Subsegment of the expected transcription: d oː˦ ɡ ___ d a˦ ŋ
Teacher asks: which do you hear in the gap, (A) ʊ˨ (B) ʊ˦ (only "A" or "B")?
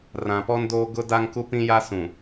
B